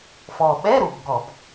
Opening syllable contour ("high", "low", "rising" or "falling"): low